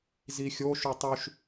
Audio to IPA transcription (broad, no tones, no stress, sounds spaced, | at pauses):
z i xʲ o ʃ u tˤ ʉ ʃ